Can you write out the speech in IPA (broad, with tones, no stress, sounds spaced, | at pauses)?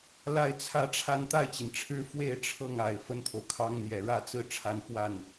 l a˥˧ ɪ̯ t͡sʰ ä˥˧ ʈ͡ʂʰ a˥˧ n t̪ a˥˩ ɪ̯ t͡ɕ i˩ n ʈ͡ʂʰ ɻ̩˥ f w e˥˧ ɪ̯ ʈ͡ʂʰ ɤ˥˩ ŋ a˨˩ ɪ̯ f ə˥ n t̪ʰ o˨ ʊ̯ kʰ ɑ˥ ŋ n̪ j ɛ˨˩ ɻ ä˥˧ t͡s ɹ̩˥˧ ʈ͡ʂʰ a˥˧ n f w a˥˩ n